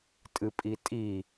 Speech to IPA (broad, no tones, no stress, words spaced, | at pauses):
tʼɨpʼitʼi